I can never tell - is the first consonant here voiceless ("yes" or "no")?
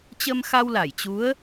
yes